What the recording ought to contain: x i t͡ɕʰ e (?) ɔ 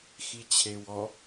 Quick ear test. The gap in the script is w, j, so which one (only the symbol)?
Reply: w